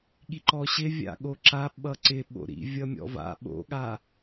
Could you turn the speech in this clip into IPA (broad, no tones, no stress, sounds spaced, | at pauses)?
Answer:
ɠ i ǃ ɔ ɕ ɪ vʲ a̰ ɠ o ǁ a ɓ ʌ ǀ ɪ ɓ o̰ ɾ ḭ vʲ ʌ mʲ ɔ̰ v a̰ ɓ o̰ ɠ a